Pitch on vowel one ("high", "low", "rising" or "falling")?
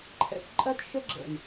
rising